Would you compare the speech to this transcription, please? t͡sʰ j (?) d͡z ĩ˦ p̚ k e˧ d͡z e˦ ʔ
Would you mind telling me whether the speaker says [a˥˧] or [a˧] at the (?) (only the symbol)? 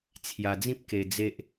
a˧